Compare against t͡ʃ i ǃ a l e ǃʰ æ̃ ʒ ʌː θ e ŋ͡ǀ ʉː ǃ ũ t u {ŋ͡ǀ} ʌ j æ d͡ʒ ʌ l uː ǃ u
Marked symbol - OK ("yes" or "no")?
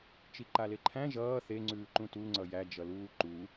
yes